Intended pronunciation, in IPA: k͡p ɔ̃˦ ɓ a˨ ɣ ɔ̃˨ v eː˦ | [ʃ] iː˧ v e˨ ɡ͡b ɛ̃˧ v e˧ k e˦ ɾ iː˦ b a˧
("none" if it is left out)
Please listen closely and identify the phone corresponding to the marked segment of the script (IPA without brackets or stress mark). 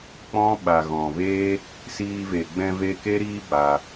s